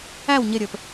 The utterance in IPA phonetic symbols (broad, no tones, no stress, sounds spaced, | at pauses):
æ w ɲ ɪ ɾʲ ə˞ p